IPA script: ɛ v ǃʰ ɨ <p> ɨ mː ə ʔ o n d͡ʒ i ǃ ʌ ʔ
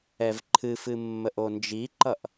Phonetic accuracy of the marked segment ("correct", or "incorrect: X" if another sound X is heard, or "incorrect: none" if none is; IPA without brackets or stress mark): incorrect: f